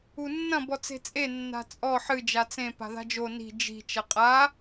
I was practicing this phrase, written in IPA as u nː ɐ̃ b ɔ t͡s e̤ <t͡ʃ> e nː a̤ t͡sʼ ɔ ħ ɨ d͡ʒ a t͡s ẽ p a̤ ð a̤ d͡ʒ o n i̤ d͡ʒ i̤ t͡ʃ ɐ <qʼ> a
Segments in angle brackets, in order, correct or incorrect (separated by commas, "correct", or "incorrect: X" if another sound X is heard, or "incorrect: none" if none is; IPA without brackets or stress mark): incorrect: t͡sʼ, correct